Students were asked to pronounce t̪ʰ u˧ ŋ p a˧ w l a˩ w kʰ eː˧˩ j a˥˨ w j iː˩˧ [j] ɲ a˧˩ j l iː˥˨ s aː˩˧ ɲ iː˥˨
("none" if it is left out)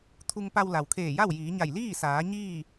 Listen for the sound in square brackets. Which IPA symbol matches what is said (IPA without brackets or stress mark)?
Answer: none